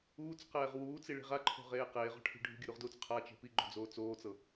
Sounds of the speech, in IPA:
uː t͡s q ɛː ʁ w uː t͡s i ɭ i̤ ʁ a ǃʰ o̤ ʁ eː q eː ʁ ɔ̤ ʈʰ i̤ ɖʱ ṳ ɡʲ ɯ ɾ u ʁ d uː t͡s qʰ a t͡ʃ e̤ p i ɡ͡ǃ o̤ d͡z oː t͡s oː t͡s ɤ

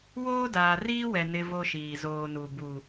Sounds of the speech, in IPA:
w oː˦ d aː˨ r iː˦ w ɛ˨ n ɪ˦ v o˦ ʃ iː˨ z oː˨ n u˨ b u˨

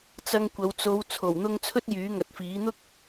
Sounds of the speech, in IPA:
t͡s ɐ˧ ŋ kʷ ɐ˨˧ w t͡s o˨˧ w t͡sʰ o˨˩ w n̪ ʊ˧ ŋ t͡sʰ ɵ˥ t̚ j yː˨˥ ŋ ɐ˨ t̚ f iː˨˥ n̪ ʊ˥ k̚

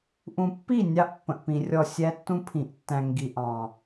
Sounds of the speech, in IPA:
ʔ ũ˨ pː i˦˨ nʲ ɑ˦ ʔ pː ə̃˨ ʔ p ĩ˨ rʲ ɔ˦˨ sʲ æ˦ tː ũ˦ pʰ ĩ˨ ʔ tː æ̃˨ ŋ ɡ i˨ ʔ ɑ̃˨

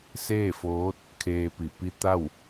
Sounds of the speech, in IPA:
s eː˥˨ f oː˧˥ t̚ | kʰ eː˧ p i˧˩ p i˧˥ t̪ a˥˨ w

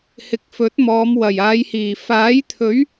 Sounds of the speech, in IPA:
h ɪ˨˥ k̚ f ɵ˨˥ t̚ m ɔː˨˧ m w ɐ˨˩ j aː˨˧ j h iː˨˩ f aː˨˥ j t̪ʰ ɵ˨˥ ɥ

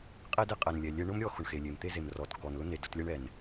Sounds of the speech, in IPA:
qʼ e˥ d e˥ qʼ ɛ˩ n lʲ ɛ˩ lʲ e˧ ɳ ʊ˥ m ɾʲ ɔ˧ x ʊ˩ ɳ x e˩ lʲ e˩ m t̪ e˥ z e˩ m r ɔ˩ t k ɔ˩ n l ʊ˥ n e˩ d ʊ˧ t lʲ ɛ˥ ɳ ɛ˩ n

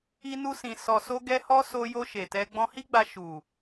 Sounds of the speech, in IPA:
i˦ n u˦ s ĩ˧ s ɔ˧ s o˦ ɡ ɛ˦ h ɔ˦ s o˧ j o˧ ʃ e˨ t ɛ˧ ɡ͡b ɔ̃˧ h i˦ ɡ͡b a˧ ʃ u˨

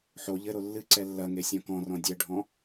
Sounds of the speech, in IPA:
ħ o ʎ ɘ ɾ o lː ɨ ǀ ɛ lː ɐ ŋ e sʲ ɔ̃ k ɔ̃ r ɔ̃ dʲ ɛ ɖʱ ɔ̃

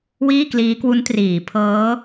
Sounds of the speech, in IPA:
w iː˥˩ k l iː˦˥ k w u˦˥ n t r iː˩˦ pʰ ɤː˦˥

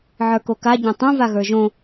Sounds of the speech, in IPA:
ʕ ə˞ k o k a ɟ õ tˤ ũ v a ɣ ə˞ ʒ õ

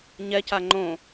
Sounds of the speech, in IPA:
ɲ ɛ c a ŋ͡ǃ õ

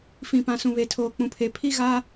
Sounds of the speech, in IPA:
f ĩ˨ p ã˨ s ũ˨ β e˨ tʰ oː˨ k͡p ũ˨ pʰ e˨ pʰ i˦ ɣ a˦

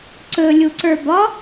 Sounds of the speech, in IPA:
ǀ ɵ lʲ u ǀ ə˞ b ɒ

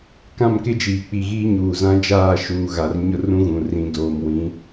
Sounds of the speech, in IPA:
k ã˦˨ m k ɪ˦ d͡ʒ iː˨ k͡p i˨ ɣ iː˦ ɲ uː˨ z ã˦ d͡ʒ aː˦˨ ʃ uː˨ ɣ a˨ r ɲ ʊ˦ r ũ˦ ɣ ũ˨ r ĩ˨ d oː˨ m w ĩ˨˦

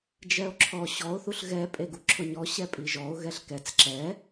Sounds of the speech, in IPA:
d͡ʒ ɛ o̯ ǁʰ ɔ ɕ ɔ o̯ θ u ɬ ɣ ɛ pʼ e ɡ u ǁʰ ʊ ɲ ɔ ɕ ɛ pʼ i ʒ ɔ o̯ ɣ ɛ ɬ k ɛ t͡s ǁ ɛ

